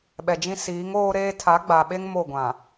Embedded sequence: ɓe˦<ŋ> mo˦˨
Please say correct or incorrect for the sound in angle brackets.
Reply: correct